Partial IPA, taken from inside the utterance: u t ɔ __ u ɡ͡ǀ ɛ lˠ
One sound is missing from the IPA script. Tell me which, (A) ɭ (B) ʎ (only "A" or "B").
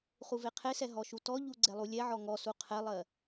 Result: B